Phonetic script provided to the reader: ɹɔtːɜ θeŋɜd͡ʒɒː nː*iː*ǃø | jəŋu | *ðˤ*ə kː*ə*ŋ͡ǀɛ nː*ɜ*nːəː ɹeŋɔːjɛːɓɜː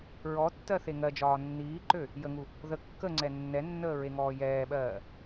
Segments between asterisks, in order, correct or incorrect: correct, incorrect, correct, incorrect

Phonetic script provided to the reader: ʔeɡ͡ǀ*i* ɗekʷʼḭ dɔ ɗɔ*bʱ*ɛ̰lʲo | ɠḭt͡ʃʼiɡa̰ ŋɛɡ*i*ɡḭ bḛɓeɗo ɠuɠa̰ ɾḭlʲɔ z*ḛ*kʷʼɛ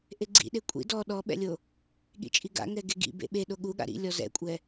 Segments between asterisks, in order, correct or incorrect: incorrect, incorrect, incorrect, incorrect

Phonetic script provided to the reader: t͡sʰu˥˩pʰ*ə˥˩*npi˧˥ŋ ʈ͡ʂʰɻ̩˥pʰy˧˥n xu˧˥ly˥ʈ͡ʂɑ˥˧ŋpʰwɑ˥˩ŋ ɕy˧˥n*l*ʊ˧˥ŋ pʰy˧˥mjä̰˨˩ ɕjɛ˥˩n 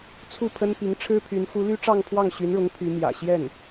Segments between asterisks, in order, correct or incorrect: incorrect, incorrect

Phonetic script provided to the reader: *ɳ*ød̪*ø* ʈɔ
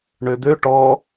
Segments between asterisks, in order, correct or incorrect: correct, correct

